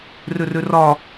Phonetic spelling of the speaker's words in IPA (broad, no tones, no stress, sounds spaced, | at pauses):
r ø r ø r ɒ